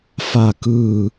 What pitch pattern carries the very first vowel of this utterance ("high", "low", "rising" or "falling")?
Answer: falling